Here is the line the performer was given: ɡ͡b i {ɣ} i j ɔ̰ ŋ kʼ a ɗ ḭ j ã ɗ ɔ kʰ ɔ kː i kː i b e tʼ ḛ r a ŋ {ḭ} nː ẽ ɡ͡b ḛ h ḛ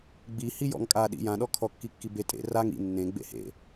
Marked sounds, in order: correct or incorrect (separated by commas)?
incorrect, correct